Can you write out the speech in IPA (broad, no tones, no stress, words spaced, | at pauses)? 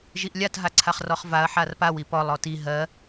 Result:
ʒiʔlʲat ɦaǀʰaχrɔχvaɐ̯ ħarpaw ipɔlˠ ɔti ɦɜ